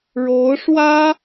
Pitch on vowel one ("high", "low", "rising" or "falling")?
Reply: rising